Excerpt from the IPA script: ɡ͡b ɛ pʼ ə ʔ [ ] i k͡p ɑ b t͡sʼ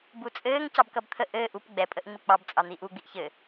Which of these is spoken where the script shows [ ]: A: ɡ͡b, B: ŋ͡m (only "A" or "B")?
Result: B